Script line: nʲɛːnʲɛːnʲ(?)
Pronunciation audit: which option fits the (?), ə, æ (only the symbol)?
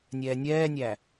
æ